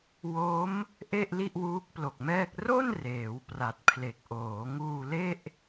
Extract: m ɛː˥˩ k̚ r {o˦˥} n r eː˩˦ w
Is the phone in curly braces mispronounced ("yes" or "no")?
yes